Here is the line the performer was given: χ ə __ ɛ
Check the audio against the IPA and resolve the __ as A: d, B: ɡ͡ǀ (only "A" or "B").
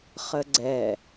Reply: B